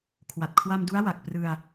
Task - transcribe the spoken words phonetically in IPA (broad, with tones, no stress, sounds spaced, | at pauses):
kʰ w a˨˩ t̚ kʰ w a˧ m d u˦˥ a̯ w a˨˩ k̚ p r ɯ˧ a̯